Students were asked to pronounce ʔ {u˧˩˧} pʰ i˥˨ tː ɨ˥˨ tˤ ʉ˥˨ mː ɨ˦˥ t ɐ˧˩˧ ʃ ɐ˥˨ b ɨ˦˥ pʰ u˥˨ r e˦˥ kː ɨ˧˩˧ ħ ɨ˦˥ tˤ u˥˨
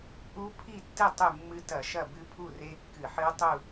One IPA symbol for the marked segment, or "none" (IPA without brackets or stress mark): u˦˥